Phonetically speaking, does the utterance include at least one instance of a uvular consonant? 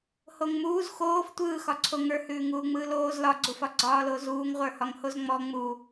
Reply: yes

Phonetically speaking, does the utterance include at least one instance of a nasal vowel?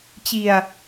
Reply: no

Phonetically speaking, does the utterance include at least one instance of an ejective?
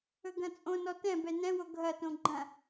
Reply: yes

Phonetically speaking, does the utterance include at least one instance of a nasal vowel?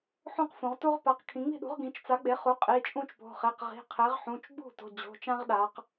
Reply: yes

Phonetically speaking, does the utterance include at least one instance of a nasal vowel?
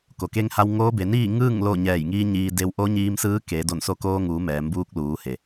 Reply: no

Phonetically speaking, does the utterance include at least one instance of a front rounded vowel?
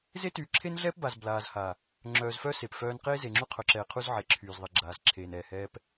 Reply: yes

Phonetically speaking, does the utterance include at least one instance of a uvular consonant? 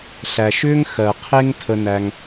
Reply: yes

